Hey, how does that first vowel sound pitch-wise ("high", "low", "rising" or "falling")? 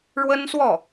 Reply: high